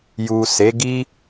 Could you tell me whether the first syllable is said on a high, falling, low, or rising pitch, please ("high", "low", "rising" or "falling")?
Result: low